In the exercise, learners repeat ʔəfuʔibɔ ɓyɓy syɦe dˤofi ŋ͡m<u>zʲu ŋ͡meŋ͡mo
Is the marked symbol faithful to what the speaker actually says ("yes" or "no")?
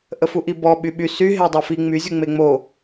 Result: no